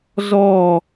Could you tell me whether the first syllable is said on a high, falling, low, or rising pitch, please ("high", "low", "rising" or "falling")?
falling